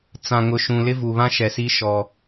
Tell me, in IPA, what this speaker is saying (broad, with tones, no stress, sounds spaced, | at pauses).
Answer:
t͡s ã˨ ŋ ʊ˨ ʃ ũ˨ l ɪ˦ v u˨ β ã˦ ʃ ɛ˨ s i˦ ʃ ɔ˦